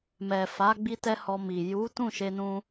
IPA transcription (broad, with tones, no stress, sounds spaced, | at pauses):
m ɛ˨ f a˨˦ ɡ͡b i˧ t ɛ˦ h ɔ˧ m i˨ j u˨˦ t ũ˦˨ ʃ e˧ n ũ˧